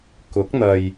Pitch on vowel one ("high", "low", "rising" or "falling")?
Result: rising